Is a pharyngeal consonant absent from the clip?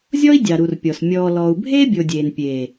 yes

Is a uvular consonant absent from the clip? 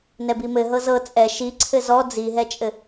yes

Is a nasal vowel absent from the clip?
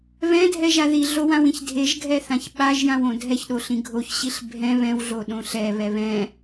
no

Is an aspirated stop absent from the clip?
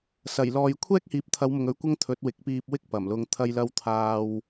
no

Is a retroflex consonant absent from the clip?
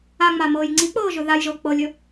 yes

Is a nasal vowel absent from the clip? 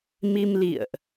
yes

